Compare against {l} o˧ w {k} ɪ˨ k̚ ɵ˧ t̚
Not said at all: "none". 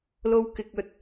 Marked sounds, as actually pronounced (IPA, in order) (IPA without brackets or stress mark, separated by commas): l, k